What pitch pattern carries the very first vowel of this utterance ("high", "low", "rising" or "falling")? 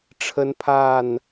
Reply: high